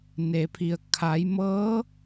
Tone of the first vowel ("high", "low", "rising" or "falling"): low